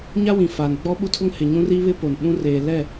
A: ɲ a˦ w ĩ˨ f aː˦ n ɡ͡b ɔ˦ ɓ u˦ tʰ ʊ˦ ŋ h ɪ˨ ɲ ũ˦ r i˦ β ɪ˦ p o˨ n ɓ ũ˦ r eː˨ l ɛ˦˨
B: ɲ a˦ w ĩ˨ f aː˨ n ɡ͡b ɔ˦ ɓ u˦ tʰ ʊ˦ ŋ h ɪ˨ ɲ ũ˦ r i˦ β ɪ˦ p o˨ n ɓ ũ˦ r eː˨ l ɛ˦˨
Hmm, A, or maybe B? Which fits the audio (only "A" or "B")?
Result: B